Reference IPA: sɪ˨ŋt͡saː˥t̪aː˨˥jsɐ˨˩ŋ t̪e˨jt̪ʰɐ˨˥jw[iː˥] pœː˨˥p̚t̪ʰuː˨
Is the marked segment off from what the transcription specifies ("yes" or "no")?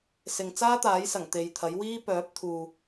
no